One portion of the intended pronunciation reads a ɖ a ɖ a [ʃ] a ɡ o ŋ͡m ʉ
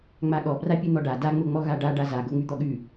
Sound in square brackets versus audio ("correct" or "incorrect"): incorrect